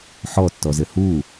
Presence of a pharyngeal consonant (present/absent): present